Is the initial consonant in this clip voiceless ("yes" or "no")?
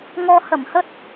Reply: no